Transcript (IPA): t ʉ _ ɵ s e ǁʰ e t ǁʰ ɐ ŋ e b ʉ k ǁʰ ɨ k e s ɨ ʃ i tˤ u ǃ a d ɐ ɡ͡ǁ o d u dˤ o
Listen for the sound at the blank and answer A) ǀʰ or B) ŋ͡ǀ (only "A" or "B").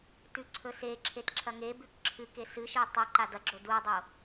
A